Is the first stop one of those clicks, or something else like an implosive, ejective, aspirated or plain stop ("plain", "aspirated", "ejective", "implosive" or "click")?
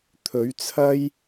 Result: aspirated